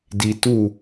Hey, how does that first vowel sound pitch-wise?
low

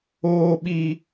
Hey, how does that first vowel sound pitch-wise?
high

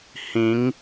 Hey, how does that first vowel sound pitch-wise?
rising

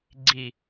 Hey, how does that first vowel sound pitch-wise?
low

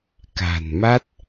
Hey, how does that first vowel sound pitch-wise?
low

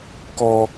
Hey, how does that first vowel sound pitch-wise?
high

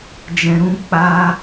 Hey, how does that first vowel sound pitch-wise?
low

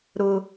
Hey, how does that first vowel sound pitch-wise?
high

